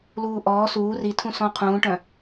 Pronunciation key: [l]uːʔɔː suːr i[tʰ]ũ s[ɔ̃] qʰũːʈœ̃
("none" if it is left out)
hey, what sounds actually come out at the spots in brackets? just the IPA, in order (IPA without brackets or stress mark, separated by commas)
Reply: l, tʰ, ɔ̃